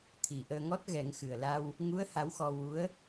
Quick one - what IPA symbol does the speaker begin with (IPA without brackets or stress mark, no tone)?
t̪ʰ